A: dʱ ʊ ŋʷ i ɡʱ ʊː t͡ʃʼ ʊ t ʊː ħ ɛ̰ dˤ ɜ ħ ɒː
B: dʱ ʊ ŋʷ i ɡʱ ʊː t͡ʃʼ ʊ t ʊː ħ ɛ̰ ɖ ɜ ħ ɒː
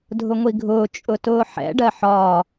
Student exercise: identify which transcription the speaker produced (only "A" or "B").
B